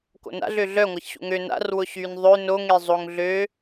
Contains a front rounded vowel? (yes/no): yes